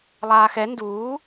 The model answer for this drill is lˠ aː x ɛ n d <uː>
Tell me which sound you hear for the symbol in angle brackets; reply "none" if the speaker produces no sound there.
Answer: uː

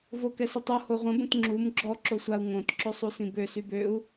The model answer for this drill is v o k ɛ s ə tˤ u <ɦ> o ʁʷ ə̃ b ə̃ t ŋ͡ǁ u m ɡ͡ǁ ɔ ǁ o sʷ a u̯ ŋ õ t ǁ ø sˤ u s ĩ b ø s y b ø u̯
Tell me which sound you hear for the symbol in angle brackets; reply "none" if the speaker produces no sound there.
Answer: h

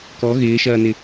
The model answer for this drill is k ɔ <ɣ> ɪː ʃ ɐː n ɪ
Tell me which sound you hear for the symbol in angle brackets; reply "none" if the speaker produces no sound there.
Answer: ɣ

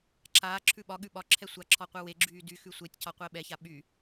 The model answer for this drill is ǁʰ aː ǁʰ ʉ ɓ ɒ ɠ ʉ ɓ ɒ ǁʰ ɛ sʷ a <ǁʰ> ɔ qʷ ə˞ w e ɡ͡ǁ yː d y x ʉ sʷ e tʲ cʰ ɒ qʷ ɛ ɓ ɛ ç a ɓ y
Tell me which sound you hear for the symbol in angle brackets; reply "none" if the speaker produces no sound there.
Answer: ǁʰ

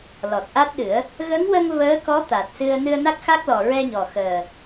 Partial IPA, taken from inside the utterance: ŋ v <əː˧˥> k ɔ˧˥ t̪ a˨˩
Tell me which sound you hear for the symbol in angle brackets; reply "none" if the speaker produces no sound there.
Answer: əː˧˥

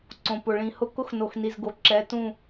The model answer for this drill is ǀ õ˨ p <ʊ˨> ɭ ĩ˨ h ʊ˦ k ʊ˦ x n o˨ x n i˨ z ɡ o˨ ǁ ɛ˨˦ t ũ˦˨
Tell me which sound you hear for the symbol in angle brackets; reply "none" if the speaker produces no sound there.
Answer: ʊ˨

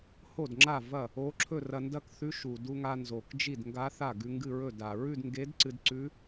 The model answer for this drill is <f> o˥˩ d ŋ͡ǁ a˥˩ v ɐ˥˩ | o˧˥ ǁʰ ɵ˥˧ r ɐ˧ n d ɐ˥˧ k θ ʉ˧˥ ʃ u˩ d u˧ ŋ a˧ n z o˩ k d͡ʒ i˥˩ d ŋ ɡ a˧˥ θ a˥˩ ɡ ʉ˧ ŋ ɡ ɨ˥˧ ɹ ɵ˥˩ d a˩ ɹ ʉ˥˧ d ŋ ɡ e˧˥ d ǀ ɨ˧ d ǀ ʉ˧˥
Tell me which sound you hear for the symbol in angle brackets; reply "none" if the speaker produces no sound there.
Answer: h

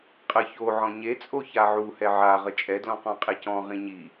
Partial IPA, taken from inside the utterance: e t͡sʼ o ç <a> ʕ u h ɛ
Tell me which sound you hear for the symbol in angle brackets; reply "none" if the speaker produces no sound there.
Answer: a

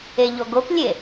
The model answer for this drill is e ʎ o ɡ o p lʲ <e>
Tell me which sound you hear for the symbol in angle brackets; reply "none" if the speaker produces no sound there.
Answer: e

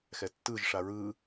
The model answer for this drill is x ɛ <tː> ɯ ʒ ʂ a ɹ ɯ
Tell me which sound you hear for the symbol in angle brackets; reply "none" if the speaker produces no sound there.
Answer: tː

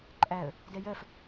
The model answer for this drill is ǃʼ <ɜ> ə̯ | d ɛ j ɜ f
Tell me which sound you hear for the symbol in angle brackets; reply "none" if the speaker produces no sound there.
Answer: æ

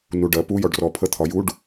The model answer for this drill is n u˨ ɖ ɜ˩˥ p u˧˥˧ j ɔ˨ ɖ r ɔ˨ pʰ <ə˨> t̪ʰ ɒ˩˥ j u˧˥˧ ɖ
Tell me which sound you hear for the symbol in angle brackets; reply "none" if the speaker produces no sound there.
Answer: ə˧˥˧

